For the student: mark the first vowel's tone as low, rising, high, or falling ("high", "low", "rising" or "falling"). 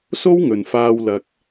high